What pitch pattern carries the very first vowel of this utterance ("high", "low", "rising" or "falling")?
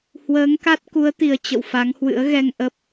rising